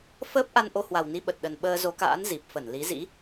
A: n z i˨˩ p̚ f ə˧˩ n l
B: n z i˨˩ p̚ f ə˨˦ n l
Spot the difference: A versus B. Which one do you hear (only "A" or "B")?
A